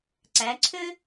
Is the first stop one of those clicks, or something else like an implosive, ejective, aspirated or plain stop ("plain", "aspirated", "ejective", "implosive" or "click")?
click